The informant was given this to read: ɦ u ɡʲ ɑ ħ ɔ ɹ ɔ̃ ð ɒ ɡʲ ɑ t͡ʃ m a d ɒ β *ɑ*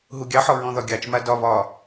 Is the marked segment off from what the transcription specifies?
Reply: yes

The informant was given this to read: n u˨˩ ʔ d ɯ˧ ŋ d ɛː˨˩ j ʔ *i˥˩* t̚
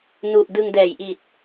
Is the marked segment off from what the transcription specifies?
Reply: yes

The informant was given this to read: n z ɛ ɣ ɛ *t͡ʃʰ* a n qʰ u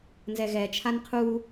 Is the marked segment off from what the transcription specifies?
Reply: no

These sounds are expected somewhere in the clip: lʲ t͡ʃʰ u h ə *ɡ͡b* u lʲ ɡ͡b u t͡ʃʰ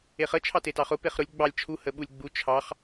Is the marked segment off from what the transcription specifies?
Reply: yes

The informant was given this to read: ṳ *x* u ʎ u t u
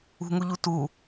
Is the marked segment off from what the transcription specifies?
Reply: yes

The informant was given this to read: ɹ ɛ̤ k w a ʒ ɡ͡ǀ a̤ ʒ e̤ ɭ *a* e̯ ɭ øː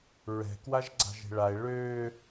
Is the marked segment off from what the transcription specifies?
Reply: no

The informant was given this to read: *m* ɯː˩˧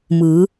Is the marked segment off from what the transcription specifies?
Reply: no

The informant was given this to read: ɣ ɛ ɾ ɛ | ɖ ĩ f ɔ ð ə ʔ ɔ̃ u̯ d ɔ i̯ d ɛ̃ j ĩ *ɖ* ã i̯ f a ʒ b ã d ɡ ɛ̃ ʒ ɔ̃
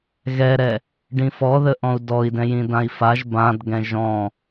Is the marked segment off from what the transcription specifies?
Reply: yes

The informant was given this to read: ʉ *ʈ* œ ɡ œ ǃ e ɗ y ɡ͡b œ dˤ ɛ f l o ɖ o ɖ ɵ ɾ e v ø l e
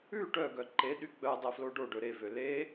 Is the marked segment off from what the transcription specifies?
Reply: no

